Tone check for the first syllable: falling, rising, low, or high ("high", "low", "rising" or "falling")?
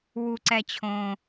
high